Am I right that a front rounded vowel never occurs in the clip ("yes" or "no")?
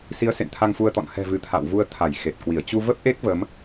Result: yes